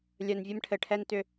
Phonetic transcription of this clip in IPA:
lʲœ˨nvʲɘ˦mʈʰɘ˨ʈʰɛ˦n tʏ˦

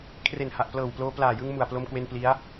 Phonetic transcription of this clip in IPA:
kʰre˨˩nha˨˩ʔplɤː˨˩wploː˧ plaː˨˩jɯ˧ŋ mu˨˩a̯plo˧mkwe˧n pli˦˥a̯

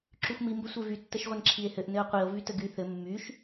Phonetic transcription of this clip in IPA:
ǁyxʷmi mbəsʷevy tːəʃʁʷənǁʰie̯hɘʔ nɘo̯qʷio̯ vytəɡy θɘ mːyʃ

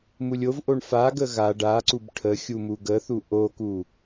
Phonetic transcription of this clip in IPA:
mulʲovʔoɳ faɡə ɣa ɖaǀub ʈʰə xʲumuɡəθu ʔoku

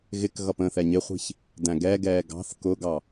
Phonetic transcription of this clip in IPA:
ɣɪkɣʌp ə̃ θɛɲɪχʷi̤ç | dæ̃ɡɛɡɛː ɡɑ̤θ kʊɡɑ

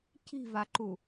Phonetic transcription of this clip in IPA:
ci̤vaǃu

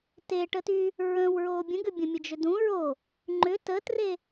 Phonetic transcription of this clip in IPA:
teʈəty | ɹə̃w ɹoːbʲə̃ɡʏbʲə̃ mʲəd͡ʒʏdũ ɹo | ŋ͡ǃʏ tətre

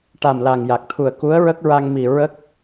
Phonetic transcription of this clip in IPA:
ʈa˨˩mla˨˩ŋja˨˩k̚t̪ʰu˨˩ə̯ ku˧˥ə̯ɹə˦˥k̚ɹa˧ŋ mi˨˩ ɹə˦˥k̚

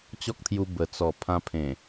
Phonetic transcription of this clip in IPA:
t͡ɕɔ˦k̚t̪ʰju˧ bə˨˩t͡sɔ˨˩ pʰã˧pʰẽ˨˩

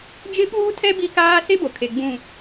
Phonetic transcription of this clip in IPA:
d͡ʒɪ˦ɓuː˦tʰɛ˦ bi˦kaː˦ se˦bo˨kʰe˨ ɡ͡bũ˦˨

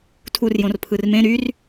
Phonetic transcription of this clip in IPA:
tʰurjõr pʰɯrmẽ ɾyr

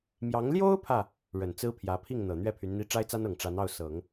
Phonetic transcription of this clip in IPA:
mjɑ˧˥ŋ ljo˥ʊ̯pʰä˨ | ɻə˨˩nt͡sɹ̩˥pʰjä˧˥ pʰi˥˩ŋ n̪ɤ˨˩n̪ɥɛ˥˩ pʰy˧˥nn̪i˥ ʈ͡ʂa˥ɪ̯t͡sa˥nɤ˨˩ŋ ʈ͡ʂa˧˥nɑ˥˩ʊ̯sɤ˨˩˦ŋ

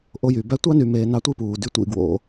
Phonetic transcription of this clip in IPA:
ʔo˧jy˨ bæ˧tʷɑ˦ny˨ meː˨ nɑ˧tʷi˦puː˨dy˧ tʷḭ˦˨ɡwo̰˧

